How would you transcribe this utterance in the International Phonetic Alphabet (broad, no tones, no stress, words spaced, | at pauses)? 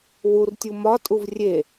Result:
wurtʲu mɒtʼuv rʲe